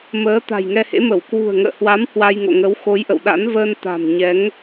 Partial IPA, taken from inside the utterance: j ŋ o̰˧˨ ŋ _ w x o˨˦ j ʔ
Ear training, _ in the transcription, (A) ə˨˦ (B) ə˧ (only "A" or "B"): A